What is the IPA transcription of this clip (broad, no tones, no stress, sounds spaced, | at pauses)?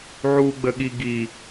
ʕ u ɡ͡b ə ɠ i ɡ i